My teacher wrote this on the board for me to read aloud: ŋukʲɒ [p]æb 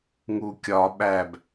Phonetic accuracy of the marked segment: incorrect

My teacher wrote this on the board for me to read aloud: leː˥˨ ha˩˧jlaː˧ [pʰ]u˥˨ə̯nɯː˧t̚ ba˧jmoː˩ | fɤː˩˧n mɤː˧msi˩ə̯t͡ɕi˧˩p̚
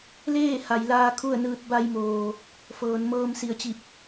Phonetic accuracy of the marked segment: incorrect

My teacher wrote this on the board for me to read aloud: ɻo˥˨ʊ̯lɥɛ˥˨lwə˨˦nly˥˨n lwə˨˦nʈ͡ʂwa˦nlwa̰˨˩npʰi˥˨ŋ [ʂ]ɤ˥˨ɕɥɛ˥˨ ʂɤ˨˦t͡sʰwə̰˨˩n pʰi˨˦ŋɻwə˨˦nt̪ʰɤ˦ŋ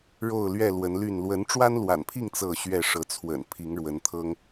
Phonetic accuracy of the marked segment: incorrect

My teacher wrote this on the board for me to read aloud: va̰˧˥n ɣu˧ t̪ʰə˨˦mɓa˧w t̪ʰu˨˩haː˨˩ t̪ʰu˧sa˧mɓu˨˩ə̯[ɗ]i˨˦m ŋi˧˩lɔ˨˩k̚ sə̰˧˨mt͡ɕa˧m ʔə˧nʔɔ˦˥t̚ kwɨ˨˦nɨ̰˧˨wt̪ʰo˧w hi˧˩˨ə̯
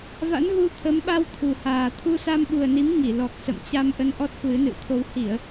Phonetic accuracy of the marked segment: incorrect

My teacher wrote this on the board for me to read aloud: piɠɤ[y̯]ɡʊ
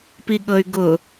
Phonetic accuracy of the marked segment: correct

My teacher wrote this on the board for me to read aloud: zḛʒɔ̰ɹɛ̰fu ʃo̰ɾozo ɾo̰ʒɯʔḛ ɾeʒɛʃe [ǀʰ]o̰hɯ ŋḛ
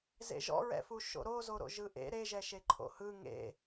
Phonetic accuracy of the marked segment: incorrect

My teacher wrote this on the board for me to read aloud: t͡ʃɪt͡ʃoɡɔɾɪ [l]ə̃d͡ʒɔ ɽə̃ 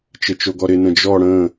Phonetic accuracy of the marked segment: incorrect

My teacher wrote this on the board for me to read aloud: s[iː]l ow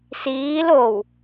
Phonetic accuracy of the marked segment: correct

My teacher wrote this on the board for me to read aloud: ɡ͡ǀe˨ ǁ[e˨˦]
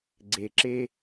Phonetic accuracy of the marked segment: incorrect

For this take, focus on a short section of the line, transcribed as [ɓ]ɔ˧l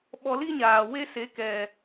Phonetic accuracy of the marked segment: correct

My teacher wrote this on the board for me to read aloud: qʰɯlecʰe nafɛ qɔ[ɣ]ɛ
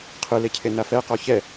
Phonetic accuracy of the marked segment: incorrect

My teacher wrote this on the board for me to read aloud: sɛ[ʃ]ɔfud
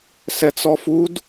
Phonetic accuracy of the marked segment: incorrect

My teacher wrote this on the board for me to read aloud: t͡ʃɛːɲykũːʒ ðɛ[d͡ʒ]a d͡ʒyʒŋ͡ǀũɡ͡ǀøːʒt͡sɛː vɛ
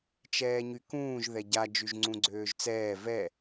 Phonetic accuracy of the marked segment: incorrect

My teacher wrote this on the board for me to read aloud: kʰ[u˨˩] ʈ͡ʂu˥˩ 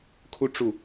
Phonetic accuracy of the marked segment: incorrect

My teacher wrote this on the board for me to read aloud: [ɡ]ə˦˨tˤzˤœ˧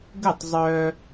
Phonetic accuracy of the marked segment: correct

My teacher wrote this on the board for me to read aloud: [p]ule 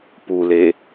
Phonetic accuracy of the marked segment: correct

